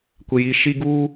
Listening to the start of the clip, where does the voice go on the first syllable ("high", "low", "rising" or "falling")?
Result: low